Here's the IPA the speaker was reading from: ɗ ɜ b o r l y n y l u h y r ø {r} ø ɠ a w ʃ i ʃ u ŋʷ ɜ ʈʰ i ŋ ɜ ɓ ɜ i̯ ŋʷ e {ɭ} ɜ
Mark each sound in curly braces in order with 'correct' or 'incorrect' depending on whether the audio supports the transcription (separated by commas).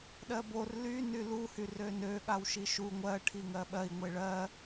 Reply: incorrect, correct